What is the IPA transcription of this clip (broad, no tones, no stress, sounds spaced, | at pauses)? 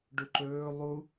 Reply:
ɖ u ǃ ɵː lˠ u